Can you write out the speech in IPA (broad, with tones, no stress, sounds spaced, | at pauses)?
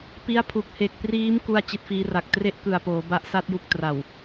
p i˦˥ a̯ pʰ u˨˩ k̚ h e˨˩ k̚ p r iː˦˥ m k u˥˩ a̯ t͡ɕ i˦˥ t̚ f iː˦˥ r a˨˩ k̚ t r e˥˩ ʔ k ɯ˨˩ a̯ p oː˩˦ b a˦˥ ʔ s a˥˩ t̚ j u˦˥ k̚ t r a˨˩ w